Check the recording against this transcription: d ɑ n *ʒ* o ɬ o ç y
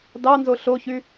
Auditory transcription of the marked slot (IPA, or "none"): z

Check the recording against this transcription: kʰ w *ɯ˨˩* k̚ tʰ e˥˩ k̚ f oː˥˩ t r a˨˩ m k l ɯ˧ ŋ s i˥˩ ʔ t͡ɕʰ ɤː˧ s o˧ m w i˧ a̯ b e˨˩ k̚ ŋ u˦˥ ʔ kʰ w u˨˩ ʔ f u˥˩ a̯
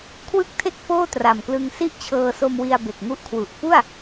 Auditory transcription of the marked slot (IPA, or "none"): ɯ˥˩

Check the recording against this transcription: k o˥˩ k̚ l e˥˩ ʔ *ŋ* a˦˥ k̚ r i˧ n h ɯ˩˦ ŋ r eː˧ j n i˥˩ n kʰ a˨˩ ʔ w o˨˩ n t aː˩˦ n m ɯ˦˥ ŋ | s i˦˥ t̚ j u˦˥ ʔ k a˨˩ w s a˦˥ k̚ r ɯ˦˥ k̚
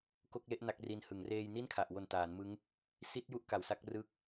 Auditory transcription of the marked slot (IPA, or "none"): n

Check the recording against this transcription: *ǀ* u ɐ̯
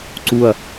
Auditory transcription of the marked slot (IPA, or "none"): ǀ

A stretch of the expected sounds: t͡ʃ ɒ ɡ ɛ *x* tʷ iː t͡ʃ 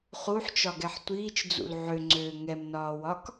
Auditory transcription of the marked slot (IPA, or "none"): ħ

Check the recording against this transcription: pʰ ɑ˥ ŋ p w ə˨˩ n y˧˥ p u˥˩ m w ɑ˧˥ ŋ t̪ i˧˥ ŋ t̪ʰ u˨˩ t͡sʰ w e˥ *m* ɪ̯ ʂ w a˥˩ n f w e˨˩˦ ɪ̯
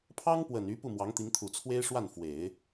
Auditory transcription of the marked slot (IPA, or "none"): none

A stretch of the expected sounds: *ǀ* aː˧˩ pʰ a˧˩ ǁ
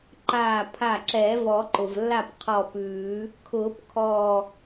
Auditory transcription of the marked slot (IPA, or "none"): ǃ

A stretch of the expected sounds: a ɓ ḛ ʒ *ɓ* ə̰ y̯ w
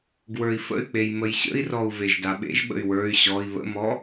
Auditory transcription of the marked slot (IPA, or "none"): ɓ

